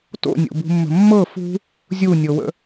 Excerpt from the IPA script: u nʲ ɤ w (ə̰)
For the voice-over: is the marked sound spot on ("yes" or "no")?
yes